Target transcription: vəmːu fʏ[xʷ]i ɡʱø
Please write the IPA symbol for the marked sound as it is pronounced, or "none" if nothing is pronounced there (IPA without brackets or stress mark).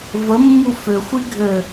xʷ